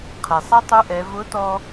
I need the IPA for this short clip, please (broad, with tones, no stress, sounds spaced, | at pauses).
qʰ ɛ˩ sˤ a˥ tˤ u˧˥ ʔ ɛ˩˧ v ʊ˧˥ t ɔ˧